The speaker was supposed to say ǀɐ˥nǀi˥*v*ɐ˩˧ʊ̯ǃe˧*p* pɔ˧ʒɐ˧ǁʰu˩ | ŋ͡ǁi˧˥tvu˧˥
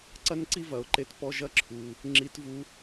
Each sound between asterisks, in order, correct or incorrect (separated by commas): correct, incorrect